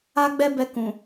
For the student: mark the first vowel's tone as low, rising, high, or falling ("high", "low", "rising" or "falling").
high